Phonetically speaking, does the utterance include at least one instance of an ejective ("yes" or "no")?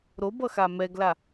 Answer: no